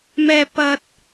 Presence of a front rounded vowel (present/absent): absent